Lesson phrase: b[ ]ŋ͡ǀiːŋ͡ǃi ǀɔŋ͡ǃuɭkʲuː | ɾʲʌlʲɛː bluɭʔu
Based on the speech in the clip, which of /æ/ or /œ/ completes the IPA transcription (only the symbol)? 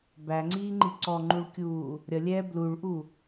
æ